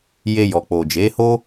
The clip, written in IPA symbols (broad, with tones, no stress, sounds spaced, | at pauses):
j e˧ j ɔ˨ k͡p o˨ d͡ʒ e˨˦ h o˦